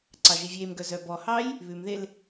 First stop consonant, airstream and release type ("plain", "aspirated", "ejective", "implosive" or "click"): click